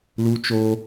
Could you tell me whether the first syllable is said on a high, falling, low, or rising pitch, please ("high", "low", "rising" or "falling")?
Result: high